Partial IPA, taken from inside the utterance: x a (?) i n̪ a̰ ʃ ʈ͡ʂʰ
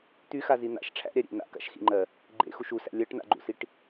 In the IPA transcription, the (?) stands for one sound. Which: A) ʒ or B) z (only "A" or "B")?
B